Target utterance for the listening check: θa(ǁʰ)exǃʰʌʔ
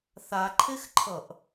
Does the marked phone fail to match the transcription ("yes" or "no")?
yes